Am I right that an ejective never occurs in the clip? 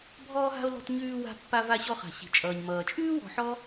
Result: no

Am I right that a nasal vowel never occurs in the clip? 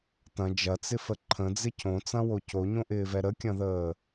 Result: no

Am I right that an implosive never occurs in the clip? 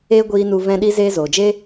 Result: no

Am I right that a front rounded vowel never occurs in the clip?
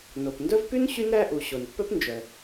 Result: no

